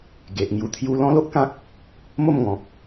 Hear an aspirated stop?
yes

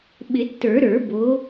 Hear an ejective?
no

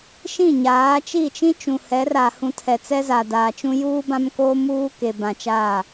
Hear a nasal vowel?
yes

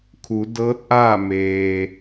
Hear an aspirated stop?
yes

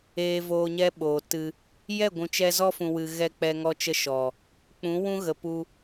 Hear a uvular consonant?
no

